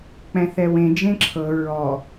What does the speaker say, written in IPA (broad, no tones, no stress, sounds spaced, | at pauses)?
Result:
k͡p ɛ̃ θ ɛ w ẽ d͡ʒ ẽ ǁʰ ɤ ɹ ɔ